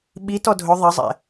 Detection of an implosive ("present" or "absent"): present